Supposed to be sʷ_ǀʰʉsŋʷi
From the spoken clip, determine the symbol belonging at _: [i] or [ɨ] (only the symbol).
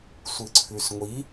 ɨ